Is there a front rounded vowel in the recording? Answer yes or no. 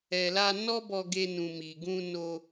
no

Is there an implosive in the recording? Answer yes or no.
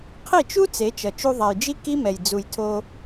no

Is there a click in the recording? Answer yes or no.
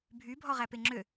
yes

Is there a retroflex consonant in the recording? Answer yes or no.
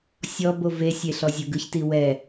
no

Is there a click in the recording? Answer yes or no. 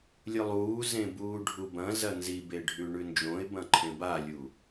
yes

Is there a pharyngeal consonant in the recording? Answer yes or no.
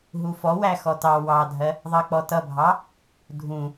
no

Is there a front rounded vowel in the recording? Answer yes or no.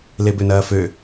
yes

